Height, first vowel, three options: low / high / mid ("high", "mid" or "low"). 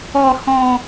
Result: mid